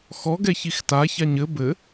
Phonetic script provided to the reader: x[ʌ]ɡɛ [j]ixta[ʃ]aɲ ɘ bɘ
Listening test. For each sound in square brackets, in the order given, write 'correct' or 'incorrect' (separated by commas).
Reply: incorrect, incorrect, incorrect